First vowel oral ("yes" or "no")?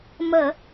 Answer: yes